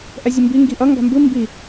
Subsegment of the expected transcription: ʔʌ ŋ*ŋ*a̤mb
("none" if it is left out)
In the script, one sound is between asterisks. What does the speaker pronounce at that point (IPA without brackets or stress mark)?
ɡ